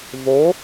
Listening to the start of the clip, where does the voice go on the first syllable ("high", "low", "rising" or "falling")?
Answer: rising